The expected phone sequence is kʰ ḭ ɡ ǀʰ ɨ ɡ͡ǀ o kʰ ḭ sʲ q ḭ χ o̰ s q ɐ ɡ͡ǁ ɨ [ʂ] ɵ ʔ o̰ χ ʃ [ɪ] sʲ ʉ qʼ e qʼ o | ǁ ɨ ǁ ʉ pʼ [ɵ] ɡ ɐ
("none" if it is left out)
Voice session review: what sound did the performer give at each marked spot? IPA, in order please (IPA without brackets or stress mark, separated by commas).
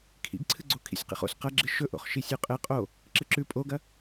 ʃ, i, o